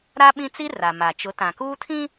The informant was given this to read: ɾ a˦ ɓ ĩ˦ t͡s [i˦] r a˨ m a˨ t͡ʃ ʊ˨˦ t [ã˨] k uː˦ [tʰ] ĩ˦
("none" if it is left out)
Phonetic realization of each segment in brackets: i˦, ã˨, tʰ

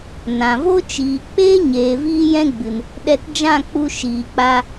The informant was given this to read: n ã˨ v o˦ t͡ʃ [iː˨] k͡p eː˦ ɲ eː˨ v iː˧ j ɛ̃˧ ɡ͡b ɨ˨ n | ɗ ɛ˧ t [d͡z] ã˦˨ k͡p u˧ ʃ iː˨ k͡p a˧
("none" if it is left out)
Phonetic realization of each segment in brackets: iː˨, d͡ʒ

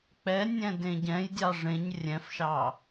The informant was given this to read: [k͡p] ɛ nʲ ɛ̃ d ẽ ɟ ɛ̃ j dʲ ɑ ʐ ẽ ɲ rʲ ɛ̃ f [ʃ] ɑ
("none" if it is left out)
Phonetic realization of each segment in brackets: k͡p, ʃ

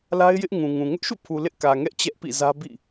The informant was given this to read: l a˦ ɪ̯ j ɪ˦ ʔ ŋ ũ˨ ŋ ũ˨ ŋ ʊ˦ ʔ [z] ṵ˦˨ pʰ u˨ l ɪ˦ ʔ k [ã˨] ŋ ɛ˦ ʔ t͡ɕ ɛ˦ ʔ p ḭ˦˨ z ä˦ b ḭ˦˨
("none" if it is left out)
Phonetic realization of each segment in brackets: ʃ, ä˨

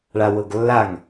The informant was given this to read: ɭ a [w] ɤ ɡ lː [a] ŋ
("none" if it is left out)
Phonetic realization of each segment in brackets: w, a

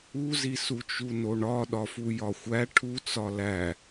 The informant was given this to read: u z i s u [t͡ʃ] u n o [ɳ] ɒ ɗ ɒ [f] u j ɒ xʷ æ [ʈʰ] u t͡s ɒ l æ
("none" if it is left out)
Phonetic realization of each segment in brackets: t͡ʃ, ɳ, f, ʈʰ

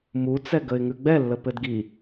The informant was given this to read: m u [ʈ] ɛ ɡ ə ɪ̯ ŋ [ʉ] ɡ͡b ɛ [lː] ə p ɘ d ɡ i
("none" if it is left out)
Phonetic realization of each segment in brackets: t͡s, ʉ, lː

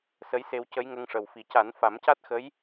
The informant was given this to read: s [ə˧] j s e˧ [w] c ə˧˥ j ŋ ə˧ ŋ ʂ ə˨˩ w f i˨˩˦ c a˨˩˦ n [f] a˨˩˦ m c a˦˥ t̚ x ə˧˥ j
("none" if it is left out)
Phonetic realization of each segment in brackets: ə˧˥, w, f

